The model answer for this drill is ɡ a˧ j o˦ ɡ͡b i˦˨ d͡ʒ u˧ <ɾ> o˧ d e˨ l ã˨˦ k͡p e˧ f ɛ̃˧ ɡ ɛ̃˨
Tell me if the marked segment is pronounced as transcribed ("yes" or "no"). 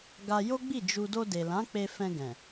no